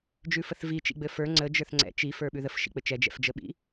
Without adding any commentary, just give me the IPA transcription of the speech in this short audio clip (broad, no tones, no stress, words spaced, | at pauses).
d͡ʒʉfəθvi t͡ʃḭɡ͡bɘfə˞ ŋ͡ǀə d͡ʒə˞θŋ͡ǀɛ̰ t͡ʃi fə˞ɓʉðəf ʃḭk͡pɘt͡ʃɛ d͡ʒɛ̰fd͡ʒəɓḭ